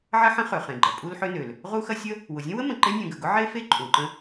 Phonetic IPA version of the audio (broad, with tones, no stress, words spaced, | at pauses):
ʕɐ˥ħə̃˥ χø˩χẽ˩ɡ͡ǃɐ˩ pʼu˥lħø˥nø˩l | ʁu˥xɐ˥ sʲə˥ | wʊ˩zʲə̃˥wə˥ mə̃˩ǃe˥nʲũ˩ ɡə˩ɡʊ˥ ʕe˥fe˥ ǃʼũ˩ǃə̃˥